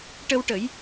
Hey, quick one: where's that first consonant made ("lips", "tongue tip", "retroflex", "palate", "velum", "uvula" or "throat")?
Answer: retroflex